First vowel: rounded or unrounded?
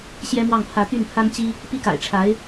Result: unrounded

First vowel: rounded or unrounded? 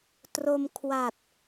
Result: rounded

